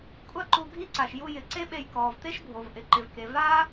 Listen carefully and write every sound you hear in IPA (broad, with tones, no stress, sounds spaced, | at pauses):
kʷʼ a˦ ǃ u˧ ɡʱ i˦ ǀ a˨ ʃ j u˧ j ɪ˨˦ ǀ e˦ ɓ e˧ j k ɔː˨ v t̪ e˦ ʃ bʱ o˨ v ʔ ɪ˨ ǃ ɪ˨ v k e˨ v aː˦